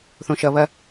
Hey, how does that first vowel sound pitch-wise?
high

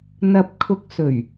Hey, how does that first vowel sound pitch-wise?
low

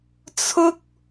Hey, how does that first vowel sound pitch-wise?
high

